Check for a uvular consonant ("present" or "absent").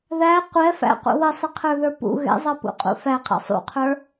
present